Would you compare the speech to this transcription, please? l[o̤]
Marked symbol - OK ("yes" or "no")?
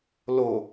no